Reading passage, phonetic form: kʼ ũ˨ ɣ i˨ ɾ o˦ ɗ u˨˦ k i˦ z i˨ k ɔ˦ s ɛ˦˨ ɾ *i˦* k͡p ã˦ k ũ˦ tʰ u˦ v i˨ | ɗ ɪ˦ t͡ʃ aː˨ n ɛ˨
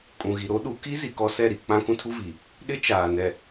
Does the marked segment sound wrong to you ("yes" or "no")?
yes